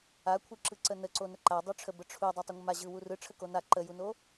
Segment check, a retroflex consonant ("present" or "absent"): present